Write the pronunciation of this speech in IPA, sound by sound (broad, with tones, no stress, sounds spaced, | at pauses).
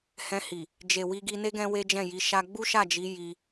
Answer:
h ɛ̃˧ h i˨ | d͡ʒ e˨ w i˧ ɡ i˧ n e˦ ɡ ɛ̃˦ w e˦ d͡ʒ ɛ̃˦˨ j i˨˦ ʃ a˦ ɡ͡b u˦ ʃ a˦˨ d͡ʒ i˨˦ j i˧